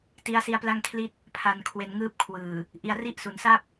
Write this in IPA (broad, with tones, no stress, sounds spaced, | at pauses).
t i˦˥ a̯ s i˦˥ a̯ p l a˥˩ ŋ kʰ l i˥˩ t̚ | pʰ a˧ n kʰ w e˧ n ŋ ɯː˥˩ p̚ kʰ w ɯː˨˩ | ʔ i˧ a̯ r i˥˩ ʔ s u˩˦ n s a˥˩ p̚